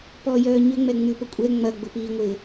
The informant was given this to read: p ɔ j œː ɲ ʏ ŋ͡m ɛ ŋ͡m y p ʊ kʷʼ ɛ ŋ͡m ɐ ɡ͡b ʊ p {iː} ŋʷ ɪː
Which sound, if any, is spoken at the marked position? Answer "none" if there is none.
iː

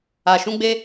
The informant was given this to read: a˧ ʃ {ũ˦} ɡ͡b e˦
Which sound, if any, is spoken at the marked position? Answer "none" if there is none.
ũ˦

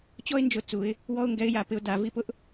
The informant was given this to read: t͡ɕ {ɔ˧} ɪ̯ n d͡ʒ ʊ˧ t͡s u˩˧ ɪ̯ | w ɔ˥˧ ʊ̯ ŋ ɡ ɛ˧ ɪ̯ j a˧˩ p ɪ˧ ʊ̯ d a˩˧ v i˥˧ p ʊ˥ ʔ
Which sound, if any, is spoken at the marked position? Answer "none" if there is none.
ɔ˥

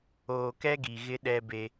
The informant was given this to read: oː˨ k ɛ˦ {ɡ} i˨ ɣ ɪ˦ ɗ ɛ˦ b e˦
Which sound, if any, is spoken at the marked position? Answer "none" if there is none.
ɡ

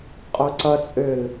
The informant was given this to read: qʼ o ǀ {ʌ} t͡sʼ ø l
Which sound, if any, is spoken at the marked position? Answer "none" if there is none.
ʌ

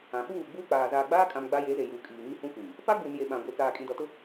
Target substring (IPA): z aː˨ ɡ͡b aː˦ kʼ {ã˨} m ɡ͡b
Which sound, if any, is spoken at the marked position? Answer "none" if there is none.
ã˨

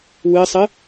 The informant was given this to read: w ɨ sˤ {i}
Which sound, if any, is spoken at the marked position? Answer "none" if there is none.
ɨ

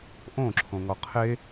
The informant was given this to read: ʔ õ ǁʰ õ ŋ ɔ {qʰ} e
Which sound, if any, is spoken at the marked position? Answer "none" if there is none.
qʰ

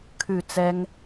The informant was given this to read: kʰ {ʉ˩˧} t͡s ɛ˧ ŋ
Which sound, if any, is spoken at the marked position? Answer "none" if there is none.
ʉ˧˩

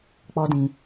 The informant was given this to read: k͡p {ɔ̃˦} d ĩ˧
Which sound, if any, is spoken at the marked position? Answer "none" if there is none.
ɔ˦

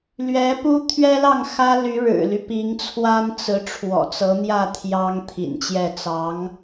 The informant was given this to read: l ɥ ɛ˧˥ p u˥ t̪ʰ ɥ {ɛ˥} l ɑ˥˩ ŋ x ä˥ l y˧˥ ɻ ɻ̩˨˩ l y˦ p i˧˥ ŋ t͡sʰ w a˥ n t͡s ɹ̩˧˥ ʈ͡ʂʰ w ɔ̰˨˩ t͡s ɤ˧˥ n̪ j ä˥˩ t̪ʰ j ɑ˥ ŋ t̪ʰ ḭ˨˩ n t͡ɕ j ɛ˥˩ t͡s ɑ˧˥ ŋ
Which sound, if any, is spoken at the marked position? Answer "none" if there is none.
ɛ˥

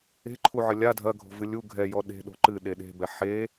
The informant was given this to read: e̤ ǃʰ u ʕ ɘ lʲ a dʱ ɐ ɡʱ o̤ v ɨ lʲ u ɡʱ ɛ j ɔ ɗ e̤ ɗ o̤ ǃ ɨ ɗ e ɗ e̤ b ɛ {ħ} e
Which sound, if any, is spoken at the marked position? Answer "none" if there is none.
ħ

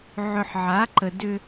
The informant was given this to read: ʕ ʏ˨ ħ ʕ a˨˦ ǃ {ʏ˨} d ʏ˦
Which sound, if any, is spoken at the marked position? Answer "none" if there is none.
ə˨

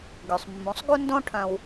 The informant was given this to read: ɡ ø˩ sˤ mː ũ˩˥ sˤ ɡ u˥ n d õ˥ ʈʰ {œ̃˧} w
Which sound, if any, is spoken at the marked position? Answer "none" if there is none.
œ̃˧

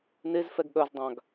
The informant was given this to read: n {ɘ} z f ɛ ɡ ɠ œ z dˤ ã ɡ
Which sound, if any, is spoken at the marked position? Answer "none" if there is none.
e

